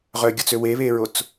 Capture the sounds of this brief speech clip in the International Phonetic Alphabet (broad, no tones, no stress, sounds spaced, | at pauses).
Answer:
ʁ œ ɡʲ ɔ t͡s ø w e β e ɹ o t͡s